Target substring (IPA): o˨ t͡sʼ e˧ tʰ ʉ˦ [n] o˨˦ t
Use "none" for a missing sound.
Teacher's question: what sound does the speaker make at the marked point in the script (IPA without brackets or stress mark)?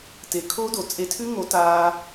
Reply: ŋ